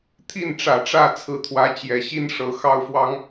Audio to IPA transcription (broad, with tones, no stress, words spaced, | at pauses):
t̪ʰi˥˩nʈ͡ʂä˨˩ʈ͡ʂä˥˩ t͡sʰɹ̩˧˥t̪ʰwä˧˥t͡ɕjɛ˨˩ɕi˥n ʂɤ˧˥xɑ˥ʊ̯fwɑ˥ŋ